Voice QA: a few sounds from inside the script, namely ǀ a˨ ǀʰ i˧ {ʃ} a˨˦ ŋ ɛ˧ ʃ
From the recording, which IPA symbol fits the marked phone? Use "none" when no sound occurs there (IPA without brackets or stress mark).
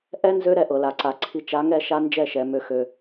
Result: t͡ʃ